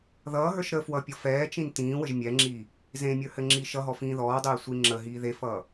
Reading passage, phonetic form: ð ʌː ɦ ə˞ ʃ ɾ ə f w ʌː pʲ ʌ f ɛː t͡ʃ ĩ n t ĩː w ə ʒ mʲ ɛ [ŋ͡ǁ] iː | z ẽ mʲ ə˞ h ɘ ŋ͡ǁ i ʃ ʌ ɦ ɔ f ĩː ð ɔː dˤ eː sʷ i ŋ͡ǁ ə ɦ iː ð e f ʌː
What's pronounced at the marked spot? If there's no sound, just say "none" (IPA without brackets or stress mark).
ŋ͡ǁ